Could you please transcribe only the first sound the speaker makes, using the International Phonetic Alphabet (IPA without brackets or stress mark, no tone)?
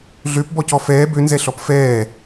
ɮ